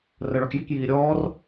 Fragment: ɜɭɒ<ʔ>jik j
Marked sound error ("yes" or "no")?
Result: yes